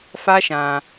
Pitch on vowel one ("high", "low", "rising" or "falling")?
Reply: high